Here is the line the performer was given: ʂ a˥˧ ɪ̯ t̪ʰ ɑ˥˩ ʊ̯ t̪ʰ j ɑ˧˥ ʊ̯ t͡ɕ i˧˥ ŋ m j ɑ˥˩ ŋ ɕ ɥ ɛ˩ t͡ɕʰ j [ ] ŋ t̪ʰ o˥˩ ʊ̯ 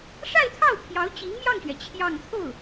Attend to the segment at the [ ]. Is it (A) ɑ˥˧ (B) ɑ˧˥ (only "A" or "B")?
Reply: A